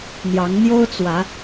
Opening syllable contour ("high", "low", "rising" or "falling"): rising